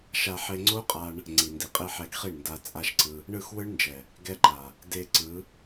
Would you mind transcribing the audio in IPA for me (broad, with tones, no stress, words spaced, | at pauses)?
ʃa˧ħe˧ŋ͡ǀo˦qʼa˧ɳ | ŋ͡ǀi˨ndi˨qʼe˧ ħɛ˧ɡχi˦˨ɳnda˧ t͡sʼa˦ʃǀɯ˧ | ɳɯ˦˨xwɯ˦ɳnd͡ʒɛ˨ | ɡɛ˧ǃa˨ | de˧ǀɯ˨˦